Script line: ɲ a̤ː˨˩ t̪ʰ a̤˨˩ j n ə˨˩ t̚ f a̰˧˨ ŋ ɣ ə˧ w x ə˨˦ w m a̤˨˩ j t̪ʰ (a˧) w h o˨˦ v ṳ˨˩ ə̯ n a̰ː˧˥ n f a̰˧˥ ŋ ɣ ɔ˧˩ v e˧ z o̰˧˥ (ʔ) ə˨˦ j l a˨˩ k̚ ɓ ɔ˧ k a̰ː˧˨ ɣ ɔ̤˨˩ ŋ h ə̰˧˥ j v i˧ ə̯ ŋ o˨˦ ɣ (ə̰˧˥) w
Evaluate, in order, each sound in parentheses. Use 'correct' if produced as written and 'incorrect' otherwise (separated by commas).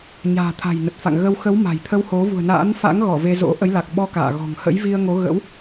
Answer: incorrect, correct, correct